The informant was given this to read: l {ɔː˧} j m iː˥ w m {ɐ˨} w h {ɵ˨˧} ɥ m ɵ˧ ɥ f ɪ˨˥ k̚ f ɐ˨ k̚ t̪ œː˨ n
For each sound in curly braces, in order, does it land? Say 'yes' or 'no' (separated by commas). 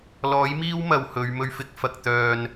no, yes, yes